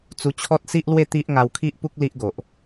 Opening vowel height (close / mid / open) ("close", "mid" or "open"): close